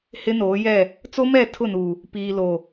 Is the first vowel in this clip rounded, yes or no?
no